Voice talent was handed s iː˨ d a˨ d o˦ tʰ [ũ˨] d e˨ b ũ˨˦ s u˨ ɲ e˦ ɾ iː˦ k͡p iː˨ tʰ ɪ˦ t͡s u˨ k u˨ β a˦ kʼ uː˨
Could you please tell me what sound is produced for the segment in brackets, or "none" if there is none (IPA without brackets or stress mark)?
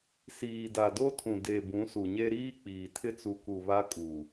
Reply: ũ˨